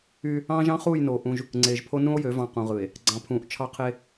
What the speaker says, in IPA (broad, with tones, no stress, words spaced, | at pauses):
y˦ | ɑ̃ː˦ʒɑ̃˦χuː˦˨jnoː˨ ʔũ˦ʒ | ŋ͡ǀeː˨ʒpʰo˦ nũ˦o̯jø˨˦ vɑ̃˨ qũ˨ʁɯ˨e̯ | ɡ͡ǀɑ̃˨pʰũː˨ʔ t͡ʃʰɑ˦qʰe˦